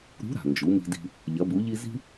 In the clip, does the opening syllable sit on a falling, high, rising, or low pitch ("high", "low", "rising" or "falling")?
rising